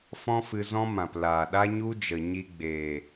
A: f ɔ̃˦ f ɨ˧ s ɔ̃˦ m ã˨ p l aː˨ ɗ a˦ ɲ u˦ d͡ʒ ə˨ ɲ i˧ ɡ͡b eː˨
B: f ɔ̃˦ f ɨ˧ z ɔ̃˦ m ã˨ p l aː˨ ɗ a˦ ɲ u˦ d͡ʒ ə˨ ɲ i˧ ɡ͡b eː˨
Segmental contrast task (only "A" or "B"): B